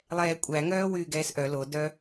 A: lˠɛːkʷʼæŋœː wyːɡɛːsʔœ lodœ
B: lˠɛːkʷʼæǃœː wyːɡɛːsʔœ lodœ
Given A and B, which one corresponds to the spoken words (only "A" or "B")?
A